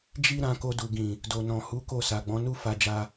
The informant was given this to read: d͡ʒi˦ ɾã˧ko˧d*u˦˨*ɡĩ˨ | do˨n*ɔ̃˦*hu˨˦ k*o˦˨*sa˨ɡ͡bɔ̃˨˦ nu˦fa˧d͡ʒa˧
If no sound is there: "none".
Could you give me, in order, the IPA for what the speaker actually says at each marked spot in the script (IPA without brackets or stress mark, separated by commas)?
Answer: u˨, ɔ̃˨, o˦˨